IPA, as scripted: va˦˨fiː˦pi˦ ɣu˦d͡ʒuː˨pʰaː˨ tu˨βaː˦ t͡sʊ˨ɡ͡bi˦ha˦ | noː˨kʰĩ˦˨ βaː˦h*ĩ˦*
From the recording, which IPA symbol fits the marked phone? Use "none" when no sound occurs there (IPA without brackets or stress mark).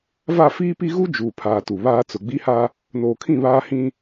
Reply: ĩ˦